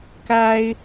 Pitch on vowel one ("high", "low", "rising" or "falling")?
high